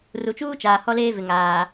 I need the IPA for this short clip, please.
ru˨t͡ʃuː˦t͡ʃaː˨ hɔ˦leː˦vɪ˨ŋaː˨

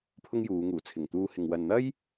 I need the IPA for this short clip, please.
pʰʊ˥ŋjuː˨˧ŋuː˨˩ t͡sʰɪ˨˩ŋt̪uː˧hɪ˨ŋ wɐ˨nn̪ɐ˥j

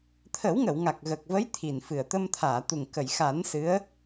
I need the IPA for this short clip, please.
t̪ʰə˨˩˦wŋə˨˩˨w ŋa˨˩k̚ɣə˨˩k̚və˧˥j t̪ʰi˨˩nfɨ˨˩ə̯ t̪ə˧mt̪ʰaː˨˩˨t̪u˨˩ŋ kə˨˩˨jxa˨˩˦n sɨ˧˥ə̯

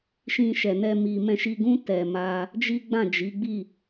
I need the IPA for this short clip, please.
ʃĩ˧ʃɛ˨ nɛ˧ mi˨ mɛ̃˧ʃi˧ɡũ˦ tɛ˧ma˦ | d͡ʒi˦ɡ͡bã˦˨d͡ʒi˨˦ ɡ͡bi˦˨

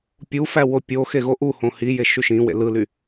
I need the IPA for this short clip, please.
pʲufæ wopʲoxe ɣoʔuhõ hije ʃyʃĩwḛ lɯly

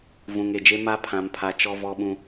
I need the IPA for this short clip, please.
vũ˨ŋe˨d͡ʒe˦ ma˦pʰã˨mpʰa˨ t͡ʃɔ˦ vɔ˦ɓũ˦

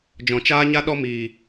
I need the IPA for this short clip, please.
d͡ʒɔ̃˨t͡ʃaː˦ɲa˦ ɗɔ˧ miː˨

